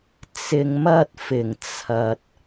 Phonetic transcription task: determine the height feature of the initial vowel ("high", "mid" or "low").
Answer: high